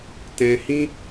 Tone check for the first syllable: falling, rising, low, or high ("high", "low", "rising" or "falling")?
low